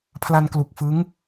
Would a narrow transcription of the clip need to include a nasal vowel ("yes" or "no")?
no